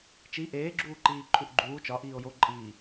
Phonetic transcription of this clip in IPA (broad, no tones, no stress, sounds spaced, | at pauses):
t͡ʃ i ʔ eː ɡ͡ǁ uː ǃ iː ǃʰ u ʔ ɡ͡ǃ uː t͡ʃ ɒ ʔ iː o̯ j o ǃʼ iː